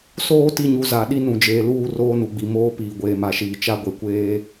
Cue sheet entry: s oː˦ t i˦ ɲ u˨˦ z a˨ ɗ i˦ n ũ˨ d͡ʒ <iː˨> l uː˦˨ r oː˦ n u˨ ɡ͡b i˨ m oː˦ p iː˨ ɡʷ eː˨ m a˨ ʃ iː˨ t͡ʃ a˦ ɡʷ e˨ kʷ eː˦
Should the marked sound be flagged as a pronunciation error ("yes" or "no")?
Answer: yes